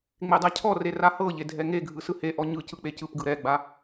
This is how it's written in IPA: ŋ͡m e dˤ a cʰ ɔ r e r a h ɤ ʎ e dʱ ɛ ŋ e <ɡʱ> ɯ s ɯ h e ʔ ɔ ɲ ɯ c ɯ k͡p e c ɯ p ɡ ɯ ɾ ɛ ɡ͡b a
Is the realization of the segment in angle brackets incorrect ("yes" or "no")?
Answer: no